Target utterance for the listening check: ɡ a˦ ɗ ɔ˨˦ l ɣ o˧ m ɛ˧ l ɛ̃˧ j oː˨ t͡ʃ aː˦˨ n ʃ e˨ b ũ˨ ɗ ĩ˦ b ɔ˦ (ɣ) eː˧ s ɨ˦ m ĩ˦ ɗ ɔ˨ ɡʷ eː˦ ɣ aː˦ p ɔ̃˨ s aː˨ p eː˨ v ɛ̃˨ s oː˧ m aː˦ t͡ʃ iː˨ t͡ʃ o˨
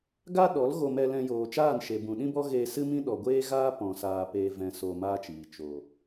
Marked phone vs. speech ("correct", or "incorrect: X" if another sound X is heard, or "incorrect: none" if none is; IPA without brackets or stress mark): correct